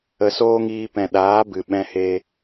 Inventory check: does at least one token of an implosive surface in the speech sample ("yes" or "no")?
yes